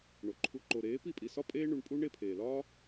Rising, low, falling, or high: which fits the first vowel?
low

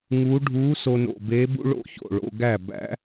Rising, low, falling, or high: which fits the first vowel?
rising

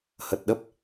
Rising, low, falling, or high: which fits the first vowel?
low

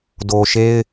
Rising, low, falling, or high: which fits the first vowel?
low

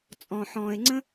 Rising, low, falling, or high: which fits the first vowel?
low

